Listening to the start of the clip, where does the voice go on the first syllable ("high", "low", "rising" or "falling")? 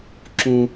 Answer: high